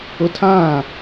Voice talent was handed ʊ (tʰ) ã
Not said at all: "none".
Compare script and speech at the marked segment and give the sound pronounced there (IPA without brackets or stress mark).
tʰ